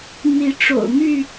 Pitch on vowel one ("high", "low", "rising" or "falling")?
rising